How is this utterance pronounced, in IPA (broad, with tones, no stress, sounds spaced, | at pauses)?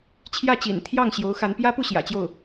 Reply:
t͡ɕʰ j ä˥˩ t͡ɕ ḭ˨˩ n t̪ʰ j ɑ˥˩ ŋ ɕ j o˧˥ ʊ̯ x a˧˥ n p j ä˥ p u˥˩ ɕ j ä̰˨˩ t͡ɕ j o˥˩ ʊ̯